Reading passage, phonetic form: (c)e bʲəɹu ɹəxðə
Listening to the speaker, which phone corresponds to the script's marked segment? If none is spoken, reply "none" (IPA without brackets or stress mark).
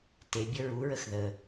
t